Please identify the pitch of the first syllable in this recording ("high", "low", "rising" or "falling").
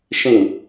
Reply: falling